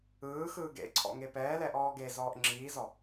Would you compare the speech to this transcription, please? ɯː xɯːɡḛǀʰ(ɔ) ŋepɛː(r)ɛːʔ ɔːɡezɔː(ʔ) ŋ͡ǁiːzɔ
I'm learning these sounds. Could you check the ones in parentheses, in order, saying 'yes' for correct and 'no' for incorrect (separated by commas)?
no, no, yes